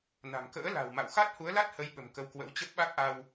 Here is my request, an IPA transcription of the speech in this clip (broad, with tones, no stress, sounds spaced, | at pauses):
n a̤˨˩ m k ə̰ː˧˥ l a̤˨˩ w m a̰˧˨ w x a˦˥ t̚ h u˨˦ ə̯ l a˦˥ t̚ h ə˨˦ j ɓ ə̤˨˩ m k ə˧ w k w ə̰˧˥ w t͡ɕ ə˦˥ p̚ ɓ a˦˥ k̚ ʔ a˧ w